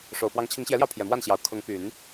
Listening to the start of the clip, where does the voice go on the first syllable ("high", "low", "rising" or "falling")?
low